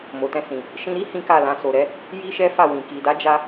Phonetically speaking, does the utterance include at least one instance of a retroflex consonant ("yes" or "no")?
no